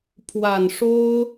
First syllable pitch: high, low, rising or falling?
low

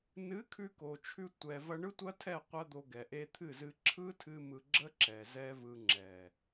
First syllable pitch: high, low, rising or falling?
rising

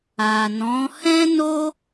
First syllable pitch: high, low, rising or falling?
low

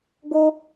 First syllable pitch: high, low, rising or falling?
high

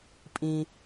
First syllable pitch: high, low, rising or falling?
low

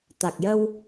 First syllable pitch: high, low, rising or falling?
low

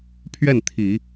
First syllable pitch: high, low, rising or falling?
falling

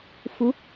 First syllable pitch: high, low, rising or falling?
rising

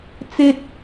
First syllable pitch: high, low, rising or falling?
high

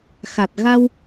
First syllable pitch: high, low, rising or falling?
low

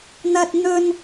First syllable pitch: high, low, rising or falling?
low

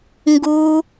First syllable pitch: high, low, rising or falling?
high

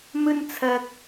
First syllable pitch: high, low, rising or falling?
high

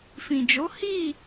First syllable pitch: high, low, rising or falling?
low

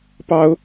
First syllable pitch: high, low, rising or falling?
high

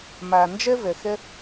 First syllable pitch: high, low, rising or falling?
low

